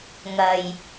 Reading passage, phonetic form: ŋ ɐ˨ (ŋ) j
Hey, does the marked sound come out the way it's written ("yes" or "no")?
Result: no